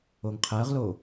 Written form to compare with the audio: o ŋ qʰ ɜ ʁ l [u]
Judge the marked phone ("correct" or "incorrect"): incorrect